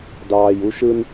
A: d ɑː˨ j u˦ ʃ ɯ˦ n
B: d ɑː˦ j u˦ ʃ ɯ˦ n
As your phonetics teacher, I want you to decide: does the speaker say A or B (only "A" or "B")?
A